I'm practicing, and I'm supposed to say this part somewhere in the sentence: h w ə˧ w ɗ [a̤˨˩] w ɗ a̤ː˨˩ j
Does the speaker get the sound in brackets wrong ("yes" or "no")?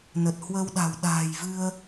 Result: no